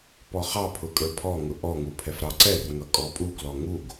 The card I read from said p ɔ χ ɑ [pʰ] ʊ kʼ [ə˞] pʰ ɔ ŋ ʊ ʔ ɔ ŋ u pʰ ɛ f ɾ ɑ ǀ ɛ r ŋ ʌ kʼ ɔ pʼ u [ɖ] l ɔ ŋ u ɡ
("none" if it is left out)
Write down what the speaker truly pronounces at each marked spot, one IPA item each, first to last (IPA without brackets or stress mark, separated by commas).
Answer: pʰ, ə˞, ɡ